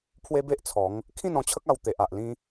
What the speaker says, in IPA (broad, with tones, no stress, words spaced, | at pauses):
pʰwe˦be˦ʔt͡sʰɔ˨˦ŋ | kʰĩ˥˧nɔ̃˧t͡ɕʰə˦k̚ a˧wt̪e˨ʔa˨ʔ lĩ˧